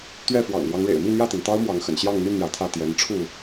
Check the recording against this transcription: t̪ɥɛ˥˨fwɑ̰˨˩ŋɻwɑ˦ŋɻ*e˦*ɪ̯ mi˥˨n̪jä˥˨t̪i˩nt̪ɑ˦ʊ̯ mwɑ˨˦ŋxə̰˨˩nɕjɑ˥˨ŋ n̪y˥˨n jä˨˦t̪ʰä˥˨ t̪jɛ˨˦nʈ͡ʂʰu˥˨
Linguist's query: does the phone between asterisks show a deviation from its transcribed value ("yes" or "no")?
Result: yes